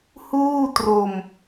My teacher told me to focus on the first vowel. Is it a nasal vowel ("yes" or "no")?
no